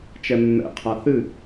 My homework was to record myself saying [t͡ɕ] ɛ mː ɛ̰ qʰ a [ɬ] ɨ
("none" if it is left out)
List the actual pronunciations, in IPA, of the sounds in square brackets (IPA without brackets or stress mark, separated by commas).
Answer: t͡ʃ, θ